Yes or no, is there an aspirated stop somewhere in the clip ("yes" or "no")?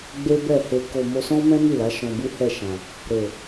no